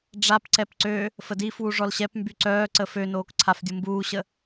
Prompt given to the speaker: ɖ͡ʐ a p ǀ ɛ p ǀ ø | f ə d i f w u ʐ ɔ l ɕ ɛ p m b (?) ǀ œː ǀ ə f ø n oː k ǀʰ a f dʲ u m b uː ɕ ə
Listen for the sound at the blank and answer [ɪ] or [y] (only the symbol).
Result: y